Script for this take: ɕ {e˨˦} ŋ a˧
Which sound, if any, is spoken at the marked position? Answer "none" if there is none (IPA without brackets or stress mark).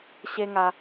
e˦